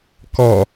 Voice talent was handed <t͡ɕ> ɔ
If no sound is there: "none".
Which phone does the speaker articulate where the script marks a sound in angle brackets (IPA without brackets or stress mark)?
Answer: k